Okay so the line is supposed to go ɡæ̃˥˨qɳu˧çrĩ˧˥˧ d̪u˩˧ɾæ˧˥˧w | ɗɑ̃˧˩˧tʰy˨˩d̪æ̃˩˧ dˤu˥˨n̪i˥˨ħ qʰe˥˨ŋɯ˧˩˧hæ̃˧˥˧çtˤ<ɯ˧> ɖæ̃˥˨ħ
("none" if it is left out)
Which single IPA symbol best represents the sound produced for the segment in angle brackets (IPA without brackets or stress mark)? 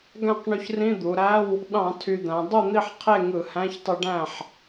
ɯ˧